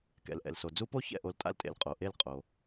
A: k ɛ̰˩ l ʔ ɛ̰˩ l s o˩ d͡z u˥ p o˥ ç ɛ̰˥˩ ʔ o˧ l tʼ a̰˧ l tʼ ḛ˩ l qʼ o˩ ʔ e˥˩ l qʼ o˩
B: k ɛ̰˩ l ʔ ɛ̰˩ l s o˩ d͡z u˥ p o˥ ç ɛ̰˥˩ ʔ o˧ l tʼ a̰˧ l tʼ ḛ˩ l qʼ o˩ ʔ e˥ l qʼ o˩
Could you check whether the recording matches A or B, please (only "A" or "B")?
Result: A